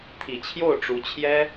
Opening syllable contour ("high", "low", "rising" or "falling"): low